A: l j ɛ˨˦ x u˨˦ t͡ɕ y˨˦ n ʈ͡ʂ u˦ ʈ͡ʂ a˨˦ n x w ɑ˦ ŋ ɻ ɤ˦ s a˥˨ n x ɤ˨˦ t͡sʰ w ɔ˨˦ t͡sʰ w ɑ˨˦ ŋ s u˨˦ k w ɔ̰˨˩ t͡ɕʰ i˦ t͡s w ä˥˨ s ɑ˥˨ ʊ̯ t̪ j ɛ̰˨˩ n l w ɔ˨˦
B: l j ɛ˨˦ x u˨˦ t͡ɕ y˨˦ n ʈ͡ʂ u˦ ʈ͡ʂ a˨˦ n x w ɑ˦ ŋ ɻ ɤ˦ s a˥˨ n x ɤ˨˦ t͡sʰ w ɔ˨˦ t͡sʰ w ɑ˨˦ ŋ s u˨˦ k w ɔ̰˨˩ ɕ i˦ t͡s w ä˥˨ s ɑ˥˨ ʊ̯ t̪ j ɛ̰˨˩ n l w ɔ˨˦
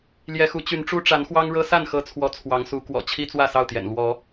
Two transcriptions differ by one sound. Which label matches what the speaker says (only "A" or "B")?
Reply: A